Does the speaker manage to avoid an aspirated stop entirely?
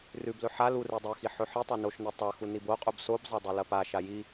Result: yes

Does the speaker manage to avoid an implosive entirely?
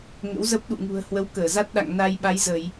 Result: no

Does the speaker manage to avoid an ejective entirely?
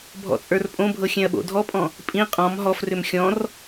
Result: no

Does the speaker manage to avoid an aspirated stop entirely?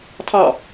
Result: no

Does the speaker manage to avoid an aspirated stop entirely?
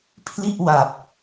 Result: no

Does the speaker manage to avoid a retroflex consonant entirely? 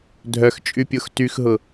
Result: yes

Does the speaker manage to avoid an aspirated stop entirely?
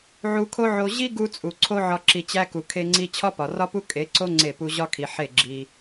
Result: no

